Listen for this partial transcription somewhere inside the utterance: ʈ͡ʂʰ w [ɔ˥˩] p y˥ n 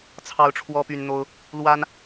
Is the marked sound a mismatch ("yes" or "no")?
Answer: yes